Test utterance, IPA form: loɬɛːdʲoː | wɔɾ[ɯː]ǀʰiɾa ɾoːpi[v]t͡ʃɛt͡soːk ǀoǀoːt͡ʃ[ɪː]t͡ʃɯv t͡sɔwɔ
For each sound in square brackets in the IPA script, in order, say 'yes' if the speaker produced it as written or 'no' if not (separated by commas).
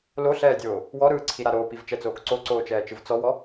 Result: yes, yes, no